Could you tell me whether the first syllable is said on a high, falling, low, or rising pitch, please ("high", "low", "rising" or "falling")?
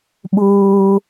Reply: low